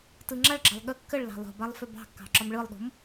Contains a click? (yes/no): yes